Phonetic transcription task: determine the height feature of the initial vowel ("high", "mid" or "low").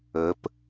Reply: mid